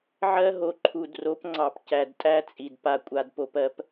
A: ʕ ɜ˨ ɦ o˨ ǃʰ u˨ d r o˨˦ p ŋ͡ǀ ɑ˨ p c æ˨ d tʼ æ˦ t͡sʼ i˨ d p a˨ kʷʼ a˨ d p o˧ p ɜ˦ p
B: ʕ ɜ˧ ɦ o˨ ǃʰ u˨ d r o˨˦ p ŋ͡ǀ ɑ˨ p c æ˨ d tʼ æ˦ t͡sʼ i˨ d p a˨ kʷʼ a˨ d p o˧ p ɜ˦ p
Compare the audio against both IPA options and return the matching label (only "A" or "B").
B